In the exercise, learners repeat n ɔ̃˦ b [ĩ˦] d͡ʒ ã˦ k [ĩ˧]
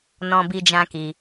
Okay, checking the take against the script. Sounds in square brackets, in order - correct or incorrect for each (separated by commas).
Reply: incorrect, incorrect